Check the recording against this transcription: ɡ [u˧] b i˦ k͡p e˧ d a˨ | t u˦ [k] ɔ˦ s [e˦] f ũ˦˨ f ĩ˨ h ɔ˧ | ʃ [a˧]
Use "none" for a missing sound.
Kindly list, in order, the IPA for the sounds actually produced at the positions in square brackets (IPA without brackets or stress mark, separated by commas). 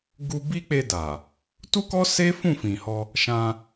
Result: u˧, k, e˦, ã˧